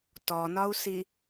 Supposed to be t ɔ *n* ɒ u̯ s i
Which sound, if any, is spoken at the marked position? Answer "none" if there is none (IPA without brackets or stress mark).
n